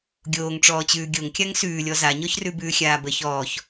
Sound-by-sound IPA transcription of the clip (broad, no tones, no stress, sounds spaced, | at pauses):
ɡʲ oː ŋ ʈ͡ʂ ɔː t͡ɕ ʉː ɡʲ o ŋ kʲ a ŋ s ʉː lʲ ɔ z a ɲ ɔ ç r ʉ b ʉː xʲ aː b ə ç ɔː ç